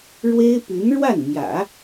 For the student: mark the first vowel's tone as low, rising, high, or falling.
high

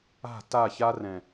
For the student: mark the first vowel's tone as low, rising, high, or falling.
falling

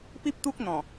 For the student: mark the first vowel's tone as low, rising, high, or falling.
high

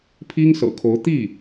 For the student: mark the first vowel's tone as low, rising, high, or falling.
high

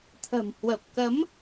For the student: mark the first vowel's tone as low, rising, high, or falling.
low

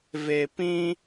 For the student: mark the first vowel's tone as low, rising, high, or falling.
low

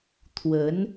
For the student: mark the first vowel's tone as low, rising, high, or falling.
rising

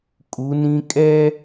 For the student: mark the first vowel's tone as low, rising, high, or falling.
rising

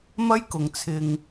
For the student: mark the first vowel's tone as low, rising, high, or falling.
high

